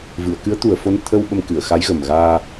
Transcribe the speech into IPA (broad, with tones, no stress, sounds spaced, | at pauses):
v ɨ˨˩˨ ə̯ k ɨ˧˥ ə̯ t̪ u˨˩ ə̯ f o˧ n t̪ʰ ə˧ w ɓ ə˧ m k ɨ˨˩˨ ə̯ x a˧˥ j ɣ ə˨˩ m ɣ aː˧